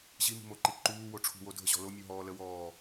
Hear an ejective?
no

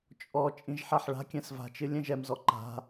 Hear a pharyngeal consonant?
yes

